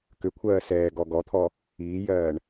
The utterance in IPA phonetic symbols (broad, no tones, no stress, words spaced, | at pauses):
kʏkʷʰɜː sɛːɡɔ ɡɔt̪ʰɔ | iːjɜːɳ